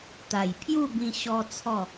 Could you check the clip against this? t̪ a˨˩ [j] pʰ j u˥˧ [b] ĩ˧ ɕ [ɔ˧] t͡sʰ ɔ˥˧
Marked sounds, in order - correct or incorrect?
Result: correct, correct, incorrect

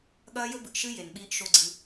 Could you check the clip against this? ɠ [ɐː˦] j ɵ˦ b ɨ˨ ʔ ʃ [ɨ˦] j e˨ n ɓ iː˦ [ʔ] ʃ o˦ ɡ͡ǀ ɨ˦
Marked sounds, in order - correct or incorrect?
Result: correct, correct, correct

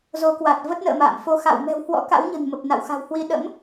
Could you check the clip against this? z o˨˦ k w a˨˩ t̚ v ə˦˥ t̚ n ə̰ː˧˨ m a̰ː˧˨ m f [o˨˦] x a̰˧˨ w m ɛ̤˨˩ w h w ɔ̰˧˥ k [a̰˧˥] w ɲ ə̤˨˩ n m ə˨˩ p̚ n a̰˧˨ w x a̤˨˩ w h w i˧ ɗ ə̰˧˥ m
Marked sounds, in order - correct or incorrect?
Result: correct, correct

